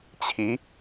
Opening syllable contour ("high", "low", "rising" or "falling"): rising